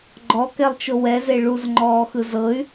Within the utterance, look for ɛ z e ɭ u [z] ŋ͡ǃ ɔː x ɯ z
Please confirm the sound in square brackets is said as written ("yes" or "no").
yes